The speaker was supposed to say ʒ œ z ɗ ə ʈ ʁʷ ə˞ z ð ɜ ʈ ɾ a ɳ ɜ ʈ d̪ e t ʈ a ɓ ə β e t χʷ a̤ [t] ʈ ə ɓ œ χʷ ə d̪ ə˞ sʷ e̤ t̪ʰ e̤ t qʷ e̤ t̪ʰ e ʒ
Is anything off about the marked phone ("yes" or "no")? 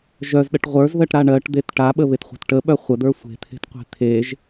no